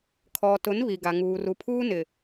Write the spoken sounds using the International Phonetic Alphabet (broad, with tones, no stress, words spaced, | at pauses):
kʰɔ˨tʊ˨˦n βi˨ɡa˨ŋuː˨ ru˨pʰuː˦ nɪ˨